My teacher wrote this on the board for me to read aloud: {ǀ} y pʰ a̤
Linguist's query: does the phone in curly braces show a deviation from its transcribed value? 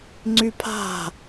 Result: yes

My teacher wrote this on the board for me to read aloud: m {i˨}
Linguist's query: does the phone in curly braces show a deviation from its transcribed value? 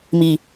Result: no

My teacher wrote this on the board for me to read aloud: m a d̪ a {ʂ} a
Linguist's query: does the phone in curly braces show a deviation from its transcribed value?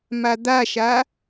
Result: yes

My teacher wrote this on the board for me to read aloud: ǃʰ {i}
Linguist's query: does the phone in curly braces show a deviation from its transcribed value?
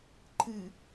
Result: yes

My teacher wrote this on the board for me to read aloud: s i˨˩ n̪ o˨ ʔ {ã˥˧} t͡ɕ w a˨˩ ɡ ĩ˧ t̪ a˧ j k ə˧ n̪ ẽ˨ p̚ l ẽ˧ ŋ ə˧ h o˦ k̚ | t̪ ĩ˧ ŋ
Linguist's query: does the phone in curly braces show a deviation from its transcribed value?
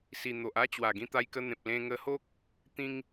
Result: yes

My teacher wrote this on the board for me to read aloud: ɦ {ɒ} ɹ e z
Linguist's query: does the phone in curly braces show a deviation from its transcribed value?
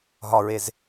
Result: no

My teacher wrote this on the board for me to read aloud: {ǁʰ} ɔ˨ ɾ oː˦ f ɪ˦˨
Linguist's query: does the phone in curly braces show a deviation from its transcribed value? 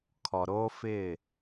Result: yes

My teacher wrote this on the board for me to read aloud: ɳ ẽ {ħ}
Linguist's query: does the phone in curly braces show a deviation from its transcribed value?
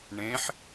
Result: no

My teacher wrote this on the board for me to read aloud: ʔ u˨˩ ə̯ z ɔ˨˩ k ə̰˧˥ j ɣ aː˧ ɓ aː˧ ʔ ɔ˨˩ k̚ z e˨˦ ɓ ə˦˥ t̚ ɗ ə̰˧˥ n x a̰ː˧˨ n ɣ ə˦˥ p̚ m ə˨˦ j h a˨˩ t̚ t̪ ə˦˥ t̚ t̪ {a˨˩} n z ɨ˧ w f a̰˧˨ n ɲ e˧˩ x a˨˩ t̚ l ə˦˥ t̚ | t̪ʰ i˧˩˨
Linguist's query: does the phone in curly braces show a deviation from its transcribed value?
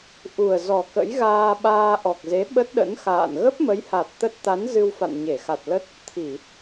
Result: yes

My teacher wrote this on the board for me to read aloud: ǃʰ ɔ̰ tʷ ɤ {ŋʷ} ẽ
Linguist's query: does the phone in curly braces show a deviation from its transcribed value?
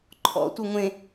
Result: no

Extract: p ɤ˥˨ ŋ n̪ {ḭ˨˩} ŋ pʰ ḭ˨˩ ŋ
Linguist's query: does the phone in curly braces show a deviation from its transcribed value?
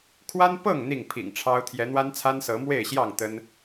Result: yes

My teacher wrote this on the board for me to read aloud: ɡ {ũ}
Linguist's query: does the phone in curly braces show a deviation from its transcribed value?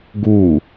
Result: yes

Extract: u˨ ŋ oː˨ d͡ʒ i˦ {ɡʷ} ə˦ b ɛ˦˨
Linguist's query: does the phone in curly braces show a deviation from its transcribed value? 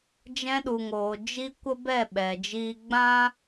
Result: yes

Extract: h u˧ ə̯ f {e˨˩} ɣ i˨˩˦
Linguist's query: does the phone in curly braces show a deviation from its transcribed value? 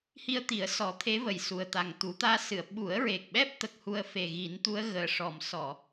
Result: no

